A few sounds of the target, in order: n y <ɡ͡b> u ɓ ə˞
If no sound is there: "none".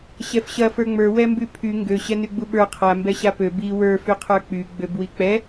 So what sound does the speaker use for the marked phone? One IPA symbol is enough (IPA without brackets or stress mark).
ɡ͡b